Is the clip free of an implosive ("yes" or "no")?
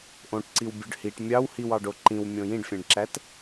yes